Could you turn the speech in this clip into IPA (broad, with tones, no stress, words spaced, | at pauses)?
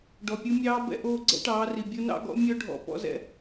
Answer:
ɖɔ˨pʲu˦ mʲɑː˦ bɛ̰˦ʔoː˦ ɡ͡ǀɛ̰˦ʈɑː˨˦ri˨ bʲo˦nɑ̰˦ɡɔ̰˦ mʲœ˦ɖʱɔ̰˨ pɔ̰˦zɛ̰˦